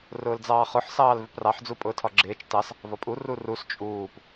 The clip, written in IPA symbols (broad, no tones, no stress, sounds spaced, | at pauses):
r ʊː l d͡z ɑː χ ʊ ħ s ɑː l v ɪ p r ɑ ħ d͡z u pʼ ʊː tʰ ɒ ɡ͡ǁ ɪː t͡ʃ t ɑ s | v ɒ pʼ u r u r u s t͡ʃʼ uː p